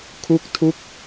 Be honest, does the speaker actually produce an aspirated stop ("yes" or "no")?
yes